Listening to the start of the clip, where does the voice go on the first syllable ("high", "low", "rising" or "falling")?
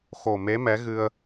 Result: low